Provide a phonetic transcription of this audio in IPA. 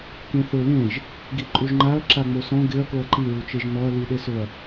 k ẽ θ ʊ l ẽ ʒ | ɡ i ǃʼ u ʒ ŋ͡ǃ a ɐ̯ ǁ a ŋ͡m o s ɔ̃ ɡ ɪ ɐ̯ k o ɐ̯ ǃ i ɹ u t͡ʃ e ʒ n ɔ ɐ̯ l i ɗ e s ʊ ɐ̯

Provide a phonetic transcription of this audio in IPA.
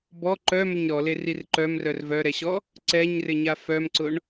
b ɔ ǃ œ m ʏ ɲ ɾ ɔ l e r i r ǃ œ m r œ r v œ ɾ ɛ ɕ ɔ | ǀ ɛ ɲ r ɪ ɲ a f œ m ǀ ʊ ɳ

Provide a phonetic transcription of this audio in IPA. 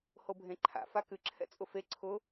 h o bʱ ẽ ǃʰ a̰ f a k ɨ ǁʰ ɛ̰ t͡sʼ ʊ f e ǀʰ ʊ

